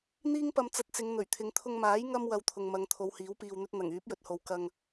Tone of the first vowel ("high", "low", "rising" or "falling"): high